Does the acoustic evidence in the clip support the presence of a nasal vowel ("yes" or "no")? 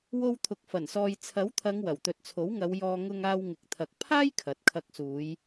no